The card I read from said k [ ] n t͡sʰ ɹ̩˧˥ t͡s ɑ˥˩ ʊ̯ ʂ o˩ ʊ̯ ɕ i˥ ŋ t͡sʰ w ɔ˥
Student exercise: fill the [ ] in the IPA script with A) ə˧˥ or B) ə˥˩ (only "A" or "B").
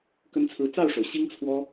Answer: A